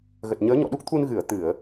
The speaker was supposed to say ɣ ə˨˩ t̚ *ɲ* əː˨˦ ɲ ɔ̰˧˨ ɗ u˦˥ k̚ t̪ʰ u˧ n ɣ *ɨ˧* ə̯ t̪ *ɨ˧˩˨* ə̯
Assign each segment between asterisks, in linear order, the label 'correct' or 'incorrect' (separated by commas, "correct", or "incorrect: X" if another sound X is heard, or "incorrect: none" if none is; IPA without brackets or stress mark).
correct, incorrect: ɨ˧˩, correct